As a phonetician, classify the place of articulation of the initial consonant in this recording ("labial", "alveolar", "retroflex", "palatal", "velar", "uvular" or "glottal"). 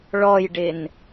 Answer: retroflex